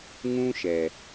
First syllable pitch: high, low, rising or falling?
high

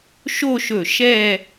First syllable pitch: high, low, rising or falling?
falling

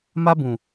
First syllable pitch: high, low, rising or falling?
high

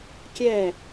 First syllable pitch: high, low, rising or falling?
falling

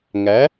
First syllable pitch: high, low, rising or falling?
rising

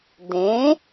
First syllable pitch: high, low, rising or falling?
rising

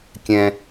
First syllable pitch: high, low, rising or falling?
low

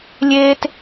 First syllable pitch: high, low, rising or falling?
high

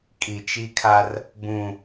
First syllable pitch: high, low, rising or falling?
low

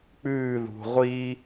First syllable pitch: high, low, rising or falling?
falling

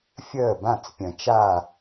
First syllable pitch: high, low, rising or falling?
falling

